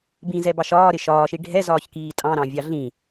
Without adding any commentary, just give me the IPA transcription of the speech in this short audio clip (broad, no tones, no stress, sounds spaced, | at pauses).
b ĩ z ɛ b ɑ ʃ ɒː ɾ ɪ ʃ ɒː ʃ i ɖʱ ɛ z ɒː ç k iː tʼ ɑ̃ ɾ ɑ̃ vʲ ɑ ɮ ĩ